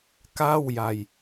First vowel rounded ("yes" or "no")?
no